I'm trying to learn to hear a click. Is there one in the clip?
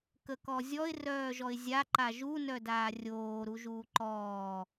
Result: yes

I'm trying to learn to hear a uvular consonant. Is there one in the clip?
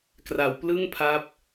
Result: no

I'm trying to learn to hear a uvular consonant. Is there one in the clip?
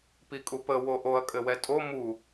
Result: no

